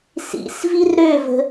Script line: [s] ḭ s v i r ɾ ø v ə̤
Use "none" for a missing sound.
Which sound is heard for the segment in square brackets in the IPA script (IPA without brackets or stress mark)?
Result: s